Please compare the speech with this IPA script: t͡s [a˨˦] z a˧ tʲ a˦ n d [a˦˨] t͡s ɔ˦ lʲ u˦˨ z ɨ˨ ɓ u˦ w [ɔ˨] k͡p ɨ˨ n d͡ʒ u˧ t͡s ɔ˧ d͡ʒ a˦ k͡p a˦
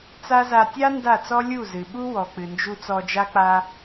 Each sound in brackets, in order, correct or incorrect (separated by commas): incorrect, correct, correct